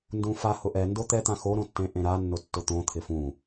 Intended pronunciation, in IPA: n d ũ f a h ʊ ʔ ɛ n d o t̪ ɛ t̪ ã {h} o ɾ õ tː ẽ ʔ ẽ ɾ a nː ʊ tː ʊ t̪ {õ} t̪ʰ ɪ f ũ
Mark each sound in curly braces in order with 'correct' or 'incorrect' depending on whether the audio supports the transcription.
incorrect: x, correct

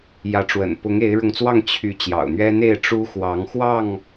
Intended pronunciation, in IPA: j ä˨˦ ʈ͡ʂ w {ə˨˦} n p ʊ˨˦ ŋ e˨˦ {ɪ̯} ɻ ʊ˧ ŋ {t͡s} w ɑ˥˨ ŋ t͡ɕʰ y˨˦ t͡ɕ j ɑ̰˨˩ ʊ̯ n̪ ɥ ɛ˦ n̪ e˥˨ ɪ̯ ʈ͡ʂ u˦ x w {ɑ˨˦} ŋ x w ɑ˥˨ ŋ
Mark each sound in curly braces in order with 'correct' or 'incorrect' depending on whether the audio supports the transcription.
incorrect: ə̰˨˩, correct, correct, correct

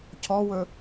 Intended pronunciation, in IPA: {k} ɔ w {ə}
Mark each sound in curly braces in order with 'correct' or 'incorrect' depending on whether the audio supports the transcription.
incorrect: cʰ, incorrect: ɵ

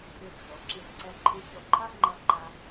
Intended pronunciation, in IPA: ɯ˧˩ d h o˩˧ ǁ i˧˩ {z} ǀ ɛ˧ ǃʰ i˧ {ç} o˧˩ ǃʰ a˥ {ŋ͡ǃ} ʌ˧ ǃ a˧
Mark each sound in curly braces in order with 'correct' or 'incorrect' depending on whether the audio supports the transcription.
correct, correct, correct

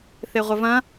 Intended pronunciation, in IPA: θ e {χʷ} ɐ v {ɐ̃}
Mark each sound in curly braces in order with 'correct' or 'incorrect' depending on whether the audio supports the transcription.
incorrect: ʁʷ, correct

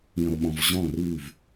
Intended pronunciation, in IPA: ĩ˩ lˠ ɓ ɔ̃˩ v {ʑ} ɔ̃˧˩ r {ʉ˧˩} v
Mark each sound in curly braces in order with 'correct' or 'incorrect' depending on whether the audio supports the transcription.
correct, correct

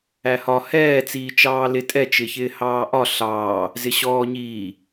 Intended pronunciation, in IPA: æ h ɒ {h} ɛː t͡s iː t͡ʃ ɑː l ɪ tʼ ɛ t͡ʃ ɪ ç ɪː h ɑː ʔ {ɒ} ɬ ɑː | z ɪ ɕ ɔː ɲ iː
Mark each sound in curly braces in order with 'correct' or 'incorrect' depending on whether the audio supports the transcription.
correct, correct

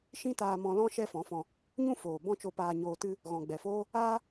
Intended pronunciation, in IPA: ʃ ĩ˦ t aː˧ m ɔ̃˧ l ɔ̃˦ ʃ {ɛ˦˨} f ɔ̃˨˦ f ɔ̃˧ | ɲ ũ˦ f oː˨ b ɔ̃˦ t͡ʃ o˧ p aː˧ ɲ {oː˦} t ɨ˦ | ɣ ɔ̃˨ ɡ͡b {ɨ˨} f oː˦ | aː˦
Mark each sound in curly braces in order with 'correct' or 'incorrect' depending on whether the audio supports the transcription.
incorrect: ɛ˦, incorrect: oː˧, incorrect: ɛ˨

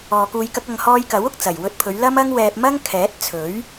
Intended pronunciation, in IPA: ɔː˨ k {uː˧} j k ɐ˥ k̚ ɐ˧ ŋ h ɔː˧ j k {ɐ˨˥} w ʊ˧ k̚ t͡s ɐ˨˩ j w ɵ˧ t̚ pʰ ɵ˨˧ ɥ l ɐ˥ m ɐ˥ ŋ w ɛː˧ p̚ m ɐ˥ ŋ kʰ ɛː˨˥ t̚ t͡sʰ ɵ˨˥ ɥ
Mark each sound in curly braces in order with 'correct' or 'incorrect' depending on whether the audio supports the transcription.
correct, correct

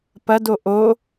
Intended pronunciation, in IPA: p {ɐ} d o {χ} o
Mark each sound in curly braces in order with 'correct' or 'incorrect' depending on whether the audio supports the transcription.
correct, incorrect: ʔ

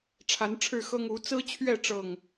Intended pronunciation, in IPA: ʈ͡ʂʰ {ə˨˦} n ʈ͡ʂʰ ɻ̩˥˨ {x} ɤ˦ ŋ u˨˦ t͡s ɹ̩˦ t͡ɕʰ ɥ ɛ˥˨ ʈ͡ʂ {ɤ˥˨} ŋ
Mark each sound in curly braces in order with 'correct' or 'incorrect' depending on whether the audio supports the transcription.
incorrect: a˨˦, correct, correct

